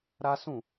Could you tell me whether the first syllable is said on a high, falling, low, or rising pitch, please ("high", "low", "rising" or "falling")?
high